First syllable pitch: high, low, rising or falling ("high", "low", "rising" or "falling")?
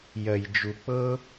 low